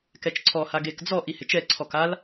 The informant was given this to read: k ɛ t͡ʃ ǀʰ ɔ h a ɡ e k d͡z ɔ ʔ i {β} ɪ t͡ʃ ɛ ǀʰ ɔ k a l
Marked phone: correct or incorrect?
incorrect